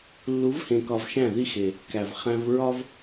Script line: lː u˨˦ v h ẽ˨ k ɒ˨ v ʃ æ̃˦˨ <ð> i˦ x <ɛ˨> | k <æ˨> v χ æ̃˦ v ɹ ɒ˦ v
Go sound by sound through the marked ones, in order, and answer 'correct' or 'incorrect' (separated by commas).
correct, incorrect, correct